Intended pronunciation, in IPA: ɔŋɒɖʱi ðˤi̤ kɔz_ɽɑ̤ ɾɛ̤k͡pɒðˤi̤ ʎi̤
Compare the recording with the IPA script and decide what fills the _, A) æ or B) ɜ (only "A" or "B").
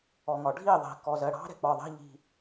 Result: B